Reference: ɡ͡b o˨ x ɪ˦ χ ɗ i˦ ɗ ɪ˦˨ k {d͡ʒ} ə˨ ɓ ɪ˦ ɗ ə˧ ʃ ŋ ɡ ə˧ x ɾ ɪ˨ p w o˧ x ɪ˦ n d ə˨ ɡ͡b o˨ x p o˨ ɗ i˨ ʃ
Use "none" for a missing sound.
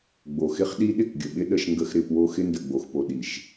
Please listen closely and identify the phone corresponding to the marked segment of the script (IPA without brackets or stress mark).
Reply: ɡʲ